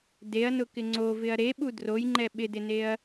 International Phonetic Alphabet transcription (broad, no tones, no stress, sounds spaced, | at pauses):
d e ɐ̯ n ʊ k ɪ ŋ͡ǀ o v ɪ ɐ̯ ɾ e ɓ u d r o j ŋ͡ǃ ɛ ɓ ɪ d ɪ n e ɐ̯